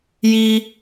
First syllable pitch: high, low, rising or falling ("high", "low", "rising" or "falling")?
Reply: high